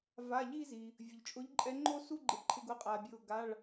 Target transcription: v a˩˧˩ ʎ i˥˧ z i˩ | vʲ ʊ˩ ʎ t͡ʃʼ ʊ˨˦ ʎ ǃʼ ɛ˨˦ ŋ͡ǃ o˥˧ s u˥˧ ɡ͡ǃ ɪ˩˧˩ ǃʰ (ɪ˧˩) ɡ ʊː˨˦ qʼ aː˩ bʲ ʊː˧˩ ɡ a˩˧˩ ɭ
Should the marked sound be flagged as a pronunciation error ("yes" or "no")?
no